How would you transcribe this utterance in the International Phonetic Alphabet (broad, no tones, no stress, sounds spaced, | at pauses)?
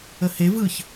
ə h e v ɯ ç